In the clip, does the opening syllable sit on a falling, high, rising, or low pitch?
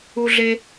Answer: high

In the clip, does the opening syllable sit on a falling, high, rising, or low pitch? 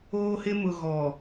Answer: high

